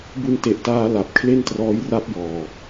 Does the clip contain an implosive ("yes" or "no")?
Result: no